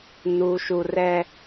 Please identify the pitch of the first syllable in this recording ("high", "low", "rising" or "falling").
low